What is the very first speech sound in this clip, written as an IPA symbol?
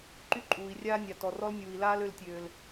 ǃ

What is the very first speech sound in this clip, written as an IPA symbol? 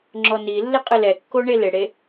ŋ͡ǁ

